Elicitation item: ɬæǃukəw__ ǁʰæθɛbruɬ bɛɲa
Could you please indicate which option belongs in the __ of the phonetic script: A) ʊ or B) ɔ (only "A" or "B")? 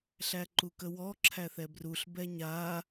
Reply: B